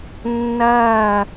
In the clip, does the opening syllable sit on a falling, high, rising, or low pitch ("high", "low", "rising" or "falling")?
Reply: falling